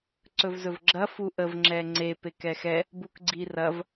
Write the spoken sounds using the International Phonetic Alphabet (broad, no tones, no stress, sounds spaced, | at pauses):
ǀ ɵ v z ɵ v ɡ͡ǁ ɐ f u ʔ ə v ŋ͡ǁ ɛ ŋ͡ǀ e p e k ɛ x ɛ | b u k ɡ͡ǀ i r ɐ v